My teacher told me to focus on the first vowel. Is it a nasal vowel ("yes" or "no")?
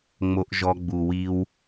no